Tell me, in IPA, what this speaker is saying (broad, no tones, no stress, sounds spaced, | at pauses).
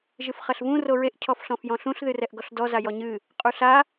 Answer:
ʒ ɨ f χ ɐ ɬ v ũ r o ɹ e ʔ cʰ ɔ f ɬ ɔ̃ f j ɔ̃ ɬ ũ ɬ ð ɨ r ɛ ʔ ɡ ɔ ɬ d ɔ z a j ɔ ɲ ɨ | qʼ u ɬ a